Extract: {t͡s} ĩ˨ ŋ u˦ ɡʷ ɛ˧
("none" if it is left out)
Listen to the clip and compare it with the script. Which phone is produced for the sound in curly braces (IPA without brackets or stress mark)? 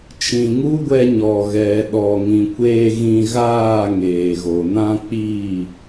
t͡ʃ